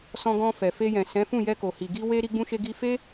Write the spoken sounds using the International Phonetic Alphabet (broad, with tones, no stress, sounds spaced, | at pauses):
s ɔ̃˧ ɡ ɔ̃˧ f ɛ˨ f e˧ j ɛ̃˨ s ɛ̃˨˦ f ũ˦˨ j ɛ˧ k o˨ h i˨ ɡ i˧ w e˧ ɾ i˦ ɡ͡b ũ˦ ʃ e˦ ɡ i˦ f e˦